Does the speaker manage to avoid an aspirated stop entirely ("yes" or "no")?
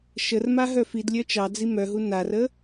yes